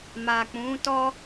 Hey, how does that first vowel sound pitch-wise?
low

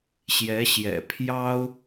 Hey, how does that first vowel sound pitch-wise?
rising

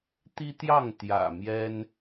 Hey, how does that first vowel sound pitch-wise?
high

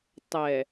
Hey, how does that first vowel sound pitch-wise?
low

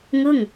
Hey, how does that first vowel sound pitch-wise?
falling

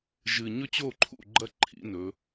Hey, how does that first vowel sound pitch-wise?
low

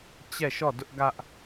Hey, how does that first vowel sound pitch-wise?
falling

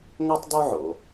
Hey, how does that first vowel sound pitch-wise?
high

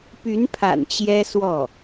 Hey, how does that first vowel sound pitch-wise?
rising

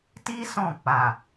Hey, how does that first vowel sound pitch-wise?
high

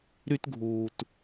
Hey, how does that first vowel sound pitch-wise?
high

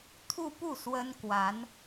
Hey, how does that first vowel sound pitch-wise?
falling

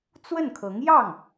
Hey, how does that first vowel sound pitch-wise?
falling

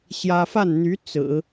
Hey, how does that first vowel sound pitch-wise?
high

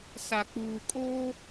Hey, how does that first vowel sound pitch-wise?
low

